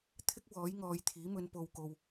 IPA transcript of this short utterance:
t̪ʰɪ˥k̚ wɔː˨˥jŋɔː˨˧jt̪ʰiː˨˥mɵ˨˧n po˨wko˨w

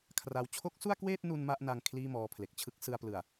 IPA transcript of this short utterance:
kʰra˧w t͡ɕʰo˦˥k̚su˥˩a̯kweː˥˩t̚nu˧n ma˥˩ʔna˧ŋ kʰliː˥˩mɔː˧pʰle˨˩k̚ t͡ɕʰɯ˦˥k̚sɯ˧a̯plɯ˨˩a̯

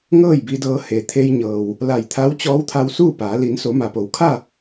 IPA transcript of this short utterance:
ŋɤː˥˨jbi˧dɤː˧ he˩t̪ʰe˧jɲɤː˩w | la˧˩jt̪ʰa˧˥w t͡ɕɔː˧˥wt̪ʰa˧w suː˥˨paː˩˧ li˩˧nso˩˧ma˩po˩˧w kʰa˥˨

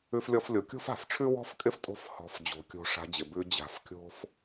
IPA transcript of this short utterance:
ʉ˧flʲɔ˧f lʲo˩kʲo̤˥fa̤˩fʈ͡ʂʰʉ˥ wɔ̤˥fkʼɪ˥ftʼo̤˧˥f hɔ̤˩˧f d͡ʑo̤˩˧kʲo̤˧ ʂa̤˧˥d͡ʑɪ˩bʉ˧˥ d͡ʑa̤˩˧f kʲo̤˥f

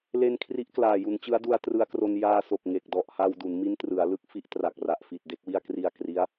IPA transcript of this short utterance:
le˧nkʰri˦˥ʔklaː˨˩ ju˩˦nt͡ɕɯ˦˥a̯du˧a̯ trɯ˧a̯kro˧n jaː˧ so˨˩k̚ ŋe˨˩k̚dɔ˨˩ʔha˧w du˩˦nmi˦˥n trɯ˩˦a̯lɯ˦˥k̚fi˦˥ʔ tra˨˩k̚ra˨˩ʔfi˨˩t̚ de˦˥k̚wi˥˩a̯ kri˧a̯kri˦˥a̯

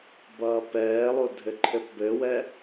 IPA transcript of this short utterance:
bʌːpɛːlˠo dʱɘǃʰɘpbɘwɛ

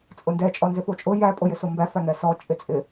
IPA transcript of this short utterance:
t͡sʼʊndɛ t͡ʃʼɔnzɪfot͡ʃʼʊ jæ pʼojɪsombæ fæŋɛsɔ t͡ʃʼɪt͡sʼɪ

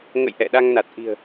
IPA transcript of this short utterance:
ŋə̰˧˨j ʔɛ̰˧˨ ɗa˧ŋna˨˩t̚ʔi̤˨˩ə̯

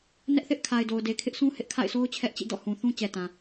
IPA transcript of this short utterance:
nɛ˦ʔθɪ˦ʔkʰa˨ɪ̯do˨ʊ̯ de˨kʰɪ˦ʔsũ˦ hɪ˦ʔ kʰa̰˦˨ɪ̯so˦ʊ̯ t͡ɕʰɛ˦ʔt͡ɕḭ˦˨ dɔ̰˦˨hũ˨θũ˦ t͡ɕɛ˨ tã˨

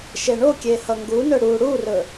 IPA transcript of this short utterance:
ʃeɳokʲe hʌŋɡunɵ ɽu ɽurɵ

